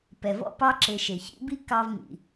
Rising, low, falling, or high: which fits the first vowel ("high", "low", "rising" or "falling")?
low